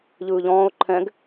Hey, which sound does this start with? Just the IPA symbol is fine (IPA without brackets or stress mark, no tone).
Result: ʎ